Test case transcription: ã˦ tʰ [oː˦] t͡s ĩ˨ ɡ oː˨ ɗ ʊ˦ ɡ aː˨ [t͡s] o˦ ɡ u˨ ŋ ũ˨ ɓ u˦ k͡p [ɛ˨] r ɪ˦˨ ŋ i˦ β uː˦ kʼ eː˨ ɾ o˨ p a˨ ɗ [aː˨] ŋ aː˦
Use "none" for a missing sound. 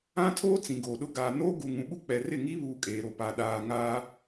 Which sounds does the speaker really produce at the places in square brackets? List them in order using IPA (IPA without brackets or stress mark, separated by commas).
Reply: oː˦, n, ɛ˨, aː˨